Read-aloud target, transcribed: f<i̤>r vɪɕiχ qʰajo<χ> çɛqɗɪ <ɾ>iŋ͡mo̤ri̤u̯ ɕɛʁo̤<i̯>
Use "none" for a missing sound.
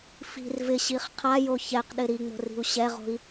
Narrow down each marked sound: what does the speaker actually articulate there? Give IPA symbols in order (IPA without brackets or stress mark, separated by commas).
i̤, none, ɾ, i̯